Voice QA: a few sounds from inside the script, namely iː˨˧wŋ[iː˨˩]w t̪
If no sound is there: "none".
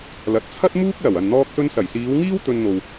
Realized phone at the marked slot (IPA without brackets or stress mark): iː˥